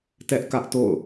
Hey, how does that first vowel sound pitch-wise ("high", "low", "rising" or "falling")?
high